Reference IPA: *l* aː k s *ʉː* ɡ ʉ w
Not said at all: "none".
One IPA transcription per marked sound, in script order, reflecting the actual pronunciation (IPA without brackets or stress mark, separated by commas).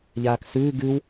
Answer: ʎ, ʉː